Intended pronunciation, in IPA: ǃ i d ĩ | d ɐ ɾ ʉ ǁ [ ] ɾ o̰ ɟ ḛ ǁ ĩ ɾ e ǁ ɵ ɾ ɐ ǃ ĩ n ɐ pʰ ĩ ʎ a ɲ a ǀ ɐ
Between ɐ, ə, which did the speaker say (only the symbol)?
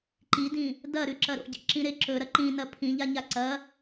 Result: ɐ